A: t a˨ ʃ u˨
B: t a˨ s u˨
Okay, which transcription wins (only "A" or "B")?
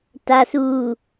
B